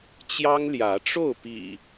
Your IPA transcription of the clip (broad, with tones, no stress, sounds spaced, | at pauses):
t͡ɕ j ɑ˦ ŋ l j ä˨˦ ʈ͡ʂ o˥˨ ʊ̯ p ḭ˨˩